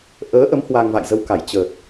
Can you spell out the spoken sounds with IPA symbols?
ʔ əː˨˦ ʔ ə˨˦ m h w a˧ ŋ v a̰˧˨ j z ə˧ w k a˧˩ j t͡ɕ ə˨˩ t̚

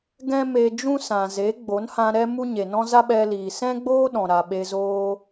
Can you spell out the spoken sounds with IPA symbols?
ɡ ɛ̃˦ m e˧ d͡ʒ ũ˦ s ã˨ z e˨˦ ɡ͡b o˨˦ n h ã˧ ɾ ɛ˦ m u˦ ɲ e˨ n ɔ̃˦ z a˦ ɓ ɛ˧ l iː˨ s ɛ̃˦ ɡ͡b oː˦ ɗ ɔ̃˨ ɾ a˨ ɓ e˧ z oː˧

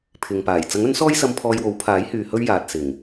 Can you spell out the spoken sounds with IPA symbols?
pʰ ɪ˨ ŋ p aː˨˩ j t͡s ɐ˨˥ ŋ ɵ˨˥ n s ɔː˥ j s ɐ˧ m pʰ ɔː˧ j w o˨˥ w pʰ aː˨˥ j h yː˨ h ɵ˥ ɥ j aː˨ t̚ s ɪ˨˩ ŋ

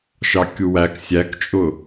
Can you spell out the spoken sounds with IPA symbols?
ʃ ɑ kʲ u w æ k sʲ æ k t͡ʃʼ ʊ

